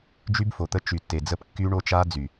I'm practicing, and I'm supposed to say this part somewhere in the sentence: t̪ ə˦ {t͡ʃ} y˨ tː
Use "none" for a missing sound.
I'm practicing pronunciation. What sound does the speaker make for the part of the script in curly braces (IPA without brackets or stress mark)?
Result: t͡ʃ